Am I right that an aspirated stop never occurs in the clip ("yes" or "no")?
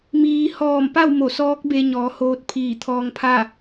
no